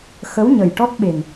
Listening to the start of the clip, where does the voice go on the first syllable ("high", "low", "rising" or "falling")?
rising